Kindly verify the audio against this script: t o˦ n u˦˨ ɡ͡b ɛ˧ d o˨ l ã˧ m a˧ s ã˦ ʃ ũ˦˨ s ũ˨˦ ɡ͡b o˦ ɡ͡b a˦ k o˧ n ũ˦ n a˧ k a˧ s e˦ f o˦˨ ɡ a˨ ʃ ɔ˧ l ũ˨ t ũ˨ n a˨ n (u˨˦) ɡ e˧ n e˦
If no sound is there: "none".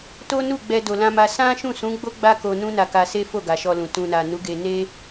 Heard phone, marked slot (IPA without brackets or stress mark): u˨˦